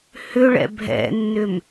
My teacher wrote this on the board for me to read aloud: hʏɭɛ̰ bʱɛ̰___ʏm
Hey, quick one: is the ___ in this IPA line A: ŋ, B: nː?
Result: B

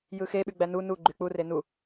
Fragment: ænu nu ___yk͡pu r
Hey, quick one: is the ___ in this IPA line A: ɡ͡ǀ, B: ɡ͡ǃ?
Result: B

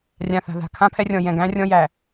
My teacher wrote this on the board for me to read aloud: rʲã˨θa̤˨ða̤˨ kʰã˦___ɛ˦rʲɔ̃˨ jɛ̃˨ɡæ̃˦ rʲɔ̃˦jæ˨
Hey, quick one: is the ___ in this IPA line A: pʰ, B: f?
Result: A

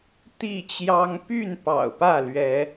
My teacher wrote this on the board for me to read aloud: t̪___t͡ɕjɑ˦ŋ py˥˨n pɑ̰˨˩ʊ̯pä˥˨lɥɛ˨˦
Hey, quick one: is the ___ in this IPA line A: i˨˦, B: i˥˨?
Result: B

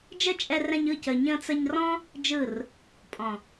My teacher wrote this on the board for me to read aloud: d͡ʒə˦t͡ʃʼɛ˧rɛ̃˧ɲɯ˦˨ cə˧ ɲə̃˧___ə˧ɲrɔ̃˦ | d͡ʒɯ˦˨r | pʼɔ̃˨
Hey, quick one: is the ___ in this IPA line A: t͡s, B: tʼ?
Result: A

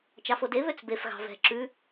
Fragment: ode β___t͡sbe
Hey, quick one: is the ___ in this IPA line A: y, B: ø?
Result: B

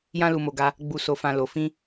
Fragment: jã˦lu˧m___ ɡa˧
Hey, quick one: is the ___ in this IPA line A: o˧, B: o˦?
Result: A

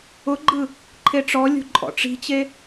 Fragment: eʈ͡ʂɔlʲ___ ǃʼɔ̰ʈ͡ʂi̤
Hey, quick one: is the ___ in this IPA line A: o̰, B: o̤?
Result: B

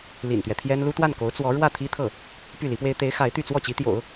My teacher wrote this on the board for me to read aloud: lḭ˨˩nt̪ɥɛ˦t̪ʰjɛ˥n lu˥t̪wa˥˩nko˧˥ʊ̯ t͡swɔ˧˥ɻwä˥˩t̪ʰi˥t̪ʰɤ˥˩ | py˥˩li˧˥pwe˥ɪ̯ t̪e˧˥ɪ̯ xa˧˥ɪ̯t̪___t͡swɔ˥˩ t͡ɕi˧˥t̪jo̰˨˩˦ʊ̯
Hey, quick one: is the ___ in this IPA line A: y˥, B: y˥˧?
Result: B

